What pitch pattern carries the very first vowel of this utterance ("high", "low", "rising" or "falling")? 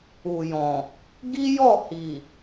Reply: low